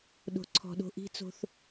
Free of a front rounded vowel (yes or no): yes